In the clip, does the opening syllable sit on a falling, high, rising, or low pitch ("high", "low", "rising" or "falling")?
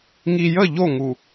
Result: low